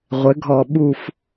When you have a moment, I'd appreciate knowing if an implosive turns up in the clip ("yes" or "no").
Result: yes